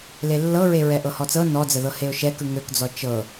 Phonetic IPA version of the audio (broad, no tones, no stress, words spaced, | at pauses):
lelːɤɹe ɹɛʔɤhɔt͡sɤ nɔd͡zəðɤ heʊ̯ʃɛ kɯŋøkd͡zɔ t͡ʃɤ